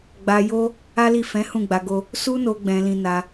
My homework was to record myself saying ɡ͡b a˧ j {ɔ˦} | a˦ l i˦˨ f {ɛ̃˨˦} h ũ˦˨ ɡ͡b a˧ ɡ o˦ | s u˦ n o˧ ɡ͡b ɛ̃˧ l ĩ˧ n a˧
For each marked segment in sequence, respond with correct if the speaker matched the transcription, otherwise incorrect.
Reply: incorrect: o˦, correct

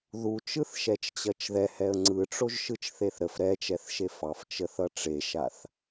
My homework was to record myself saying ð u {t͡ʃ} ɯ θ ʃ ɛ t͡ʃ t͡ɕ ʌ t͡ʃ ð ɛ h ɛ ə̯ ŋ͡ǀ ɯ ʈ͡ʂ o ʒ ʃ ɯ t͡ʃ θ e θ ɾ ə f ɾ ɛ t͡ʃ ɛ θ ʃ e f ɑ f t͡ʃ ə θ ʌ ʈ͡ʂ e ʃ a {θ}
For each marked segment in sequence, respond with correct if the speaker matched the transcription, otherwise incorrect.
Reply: correct, correct

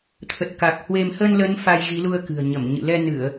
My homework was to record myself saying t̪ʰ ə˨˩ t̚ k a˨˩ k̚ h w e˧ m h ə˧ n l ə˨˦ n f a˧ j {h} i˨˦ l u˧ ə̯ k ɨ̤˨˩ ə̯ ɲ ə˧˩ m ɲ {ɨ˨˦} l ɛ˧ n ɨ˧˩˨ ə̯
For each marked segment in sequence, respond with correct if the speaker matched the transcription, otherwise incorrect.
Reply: incorrect: ɣ, incorrect: ɨ̰˧˨

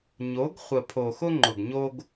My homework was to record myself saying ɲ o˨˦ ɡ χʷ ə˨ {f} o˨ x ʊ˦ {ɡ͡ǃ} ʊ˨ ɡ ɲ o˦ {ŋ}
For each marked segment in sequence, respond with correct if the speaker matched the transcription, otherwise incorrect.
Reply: incorrect: pʰ, incorrect: ŋ͡ǃ, incorrect: ɡ

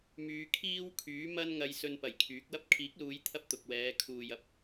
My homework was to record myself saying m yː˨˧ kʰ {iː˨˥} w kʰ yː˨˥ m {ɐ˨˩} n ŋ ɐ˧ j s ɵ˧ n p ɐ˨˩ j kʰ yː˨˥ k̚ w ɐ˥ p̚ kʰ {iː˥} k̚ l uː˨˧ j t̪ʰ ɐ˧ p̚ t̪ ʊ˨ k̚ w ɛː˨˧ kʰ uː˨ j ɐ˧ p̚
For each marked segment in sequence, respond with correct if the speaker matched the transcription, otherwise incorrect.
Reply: incorrect: iː˥, incorrect: ɐ˥, incorrect: iː˨˥

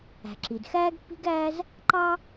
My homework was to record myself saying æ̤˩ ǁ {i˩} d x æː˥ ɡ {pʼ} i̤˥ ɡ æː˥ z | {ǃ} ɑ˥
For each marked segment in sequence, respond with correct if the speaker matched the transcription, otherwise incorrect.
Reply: correct, incorrect: pː, correct

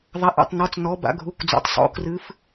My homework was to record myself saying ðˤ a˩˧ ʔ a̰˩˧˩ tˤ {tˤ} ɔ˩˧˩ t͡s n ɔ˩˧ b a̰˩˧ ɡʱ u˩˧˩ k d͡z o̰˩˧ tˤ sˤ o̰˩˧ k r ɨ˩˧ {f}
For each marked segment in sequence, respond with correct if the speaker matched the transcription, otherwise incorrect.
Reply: incorrect: n, correct

